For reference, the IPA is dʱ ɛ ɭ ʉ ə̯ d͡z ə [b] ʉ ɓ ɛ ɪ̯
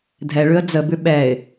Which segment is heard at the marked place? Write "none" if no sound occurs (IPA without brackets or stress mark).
b